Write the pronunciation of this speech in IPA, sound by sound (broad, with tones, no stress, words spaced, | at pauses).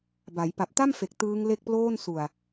ba˩˦j pa˨˩p̚ta˥˩mfe˨˩k̚ tɯː˦˥ŋ le˥˩k̚ploː˥˩n su˨˩a̯